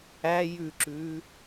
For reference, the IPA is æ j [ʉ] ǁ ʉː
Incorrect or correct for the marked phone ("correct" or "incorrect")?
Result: correct